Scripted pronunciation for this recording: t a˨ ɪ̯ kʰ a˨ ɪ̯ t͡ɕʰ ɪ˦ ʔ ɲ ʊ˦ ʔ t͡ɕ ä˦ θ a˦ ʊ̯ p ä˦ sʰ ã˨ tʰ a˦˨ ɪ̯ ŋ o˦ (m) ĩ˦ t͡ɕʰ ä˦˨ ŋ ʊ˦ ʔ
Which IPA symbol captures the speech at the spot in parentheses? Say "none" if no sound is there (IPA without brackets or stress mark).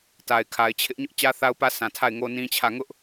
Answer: n